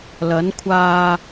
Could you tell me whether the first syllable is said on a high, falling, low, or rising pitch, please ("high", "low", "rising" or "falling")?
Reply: rising